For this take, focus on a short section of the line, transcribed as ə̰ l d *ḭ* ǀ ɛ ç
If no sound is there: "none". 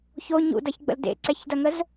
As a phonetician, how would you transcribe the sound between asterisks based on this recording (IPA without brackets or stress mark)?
ḛ